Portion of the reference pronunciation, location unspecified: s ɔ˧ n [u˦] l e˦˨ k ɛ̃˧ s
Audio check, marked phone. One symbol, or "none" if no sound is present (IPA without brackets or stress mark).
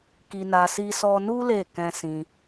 u˦